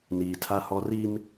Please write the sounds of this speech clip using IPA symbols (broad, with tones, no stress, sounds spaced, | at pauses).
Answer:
n iː˨ tʰ a˦ h ɔ˦ r i˦ m